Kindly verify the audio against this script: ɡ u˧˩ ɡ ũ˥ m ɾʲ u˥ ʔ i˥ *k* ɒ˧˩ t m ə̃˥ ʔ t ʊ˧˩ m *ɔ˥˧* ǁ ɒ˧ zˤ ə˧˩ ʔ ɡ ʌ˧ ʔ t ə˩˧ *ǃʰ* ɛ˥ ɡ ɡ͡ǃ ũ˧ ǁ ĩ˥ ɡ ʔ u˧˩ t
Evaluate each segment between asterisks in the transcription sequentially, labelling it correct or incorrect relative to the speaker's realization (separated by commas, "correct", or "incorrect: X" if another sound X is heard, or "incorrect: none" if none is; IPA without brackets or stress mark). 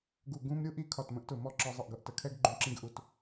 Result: incorrect: kʰ, correct, incorrect: kʰ